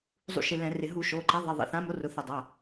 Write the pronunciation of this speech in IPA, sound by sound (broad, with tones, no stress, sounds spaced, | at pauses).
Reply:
zˤ ṵ˧˩˧ ʃ ɪ˩˧˩ l ɛ̃˧˩˧ r ɪ˧˩˧ ɦ u˧˩˧ ʃ o˩˧˩ ǃ a˨˥ ðˤ e˩˧˩ ðˤ ḭ˩˧˩ θ ã˨˥ m o˨˥ r ʊ˩˧˩ θ ɪ˧˩˧ dˤ a˩˧˩